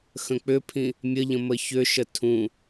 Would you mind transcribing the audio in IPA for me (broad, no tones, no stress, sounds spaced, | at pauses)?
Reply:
x ə̃ k͡p ʏ pʰ ĩ | mʲ ə ʎ ə̃ m ə ç ʏ ʃ ə tʰ ũ